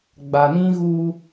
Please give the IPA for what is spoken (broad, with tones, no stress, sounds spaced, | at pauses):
ɡ͡b a˨ n ĩ˦ ɣ u˦